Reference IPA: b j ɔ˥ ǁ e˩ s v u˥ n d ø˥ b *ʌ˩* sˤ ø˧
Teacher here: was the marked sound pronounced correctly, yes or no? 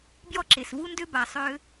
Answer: no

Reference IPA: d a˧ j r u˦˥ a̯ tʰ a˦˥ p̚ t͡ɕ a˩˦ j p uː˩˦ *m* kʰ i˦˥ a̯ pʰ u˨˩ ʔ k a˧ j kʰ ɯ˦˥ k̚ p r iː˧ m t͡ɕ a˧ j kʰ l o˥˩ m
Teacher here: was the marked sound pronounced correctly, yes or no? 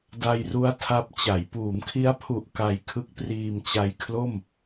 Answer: yes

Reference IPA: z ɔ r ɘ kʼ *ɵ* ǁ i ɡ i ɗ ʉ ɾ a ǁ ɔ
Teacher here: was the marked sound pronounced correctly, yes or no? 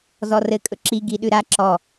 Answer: yes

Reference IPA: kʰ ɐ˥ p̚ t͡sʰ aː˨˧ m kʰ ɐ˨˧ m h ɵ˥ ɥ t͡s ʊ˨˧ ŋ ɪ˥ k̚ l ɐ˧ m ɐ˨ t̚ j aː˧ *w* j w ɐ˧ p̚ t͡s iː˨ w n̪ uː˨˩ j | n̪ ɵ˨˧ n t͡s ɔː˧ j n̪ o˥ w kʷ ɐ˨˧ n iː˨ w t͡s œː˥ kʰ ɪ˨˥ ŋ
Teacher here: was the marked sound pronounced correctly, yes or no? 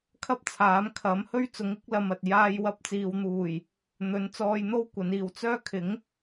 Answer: no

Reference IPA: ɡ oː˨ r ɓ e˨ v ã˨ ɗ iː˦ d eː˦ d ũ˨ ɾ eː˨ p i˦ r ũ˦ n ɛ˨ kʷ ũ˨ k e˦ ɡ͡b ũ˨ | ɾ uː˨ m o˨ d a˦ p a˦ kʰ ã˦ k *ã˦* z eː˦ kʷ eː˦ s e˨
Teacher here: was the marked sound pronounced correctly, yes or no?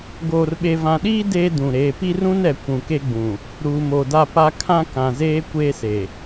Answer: no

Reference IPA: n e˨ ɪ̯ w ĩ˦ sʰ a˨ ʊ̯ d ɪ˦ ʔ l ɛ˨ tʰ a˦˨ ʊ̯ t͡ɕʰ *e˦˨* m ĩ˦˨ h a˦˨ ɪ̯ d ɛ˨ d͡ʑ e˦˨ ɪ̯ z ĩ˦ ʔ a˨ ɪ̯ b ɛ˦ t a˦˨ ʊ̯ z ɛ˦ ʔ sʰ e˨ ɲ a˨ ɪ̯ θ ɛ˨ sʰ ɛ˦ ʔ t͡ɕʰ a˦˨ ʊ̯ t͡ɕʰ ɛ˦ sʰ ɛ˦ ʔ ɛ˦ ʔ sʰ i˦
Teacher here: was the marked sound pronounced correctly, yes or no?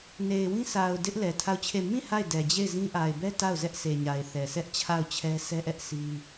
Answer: yes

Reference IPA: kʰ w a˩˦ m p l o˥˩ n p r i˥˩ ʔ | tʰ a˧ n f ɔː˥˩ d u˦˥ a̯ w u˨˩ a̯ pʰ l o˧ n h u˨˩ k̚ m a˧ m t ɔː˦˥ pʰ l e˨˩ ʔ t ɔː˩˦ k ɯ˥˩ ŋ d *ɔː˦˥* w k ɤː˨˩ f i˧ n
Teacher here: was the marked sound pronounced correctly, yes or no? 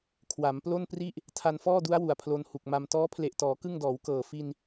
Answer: no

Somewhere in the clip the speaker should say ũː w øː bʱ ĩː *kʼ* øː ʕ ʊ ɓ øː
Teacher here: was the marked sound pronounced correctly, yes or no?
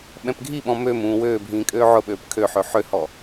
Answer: yes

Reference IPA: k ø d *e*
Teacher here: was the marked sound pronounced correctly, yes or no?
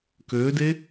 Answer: yes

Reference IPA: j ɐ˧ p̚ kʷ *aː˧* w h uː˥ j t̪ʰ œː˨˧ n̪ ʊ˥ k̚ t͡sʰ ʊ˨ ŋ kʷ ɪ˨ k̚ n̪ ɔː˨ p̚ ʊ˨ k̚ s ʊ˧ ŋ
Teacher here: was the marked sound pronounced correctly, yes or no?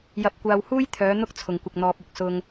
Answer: yes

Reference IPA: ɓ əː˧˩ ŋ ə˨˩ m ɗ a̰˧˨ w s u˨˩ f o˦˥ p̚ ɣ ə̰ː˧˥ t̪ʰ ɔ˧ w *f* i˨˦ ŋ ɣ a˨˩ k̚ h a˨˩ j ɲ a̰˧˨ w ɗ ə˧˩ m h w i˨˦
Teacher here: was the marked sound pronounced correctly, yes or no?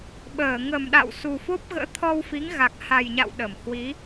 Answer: yes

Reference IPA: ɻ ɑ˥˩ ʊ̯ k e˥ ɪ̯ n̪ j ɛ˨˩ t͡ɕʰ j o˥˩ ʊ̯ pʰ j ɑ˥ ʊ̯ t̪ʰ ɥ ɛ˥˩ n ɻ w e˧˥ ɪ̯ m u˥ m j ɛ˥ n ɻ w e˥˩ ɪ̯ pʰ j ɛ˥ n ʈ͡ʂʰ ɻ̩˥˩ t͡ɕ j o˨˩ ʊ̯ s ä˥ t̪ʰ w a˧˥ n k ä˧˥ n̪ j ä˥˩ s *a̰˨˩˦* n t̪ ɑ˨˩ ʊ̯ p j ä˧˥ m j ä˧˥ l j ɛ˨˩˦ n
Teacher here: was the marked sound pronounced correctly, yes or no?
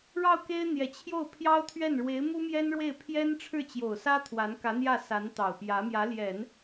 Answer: no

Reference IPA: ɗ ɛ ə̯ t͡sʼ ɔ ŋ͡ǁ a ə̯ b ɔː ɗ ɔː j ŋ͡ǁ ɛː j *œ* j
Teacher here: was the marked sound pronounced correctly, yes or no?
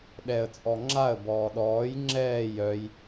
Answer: yes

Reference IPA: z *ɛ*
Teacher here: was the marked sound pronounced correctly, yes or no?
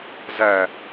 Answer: no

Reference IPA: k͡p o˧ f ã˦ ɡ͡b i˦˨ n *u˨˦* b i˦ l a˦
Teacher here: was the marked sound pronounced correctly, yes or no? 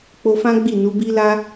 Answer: yes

